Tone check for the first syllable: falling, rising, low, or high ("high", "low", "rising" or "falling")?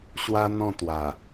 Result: high